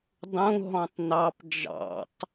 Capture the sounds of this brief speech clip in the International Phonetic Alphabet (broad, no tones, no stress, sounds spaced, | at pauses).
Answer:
dˤ ũ ɦ ɔ̃ tˤ n ɑ p d͡ʒ ɑ̰ tˤ